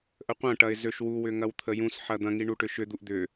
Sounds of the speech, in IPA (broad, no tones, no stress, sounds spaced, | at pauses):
ʔ ə qʷ ɐ̃ ʈ ɐ ɪ̯ z ø ʃ w u w ʏ ŋ ɐ w t̪ʰ ə j ũ s ħ ɐ d̪ ɐ̃ ŋ i ɳ u ʈ ʏ ʃ ʏ d̪ u ʔ d̪ ʏ